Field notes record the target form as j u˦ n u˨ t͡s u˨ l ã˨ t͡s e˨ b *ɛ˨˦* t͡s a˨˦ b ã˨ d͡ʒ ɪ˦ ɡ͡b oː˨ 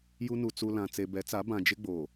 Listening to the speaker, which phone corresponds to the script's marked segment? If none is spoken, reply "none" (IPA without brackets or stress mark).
ɛ˨˦